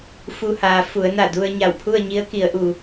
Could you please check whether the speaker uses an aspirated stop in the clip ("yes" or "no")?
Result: yes